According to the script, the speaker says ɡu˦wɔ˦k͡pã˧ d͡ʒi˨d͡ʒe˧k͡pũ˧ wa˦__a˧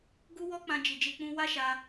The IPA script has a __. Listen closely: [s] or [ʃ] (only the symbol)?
ʃ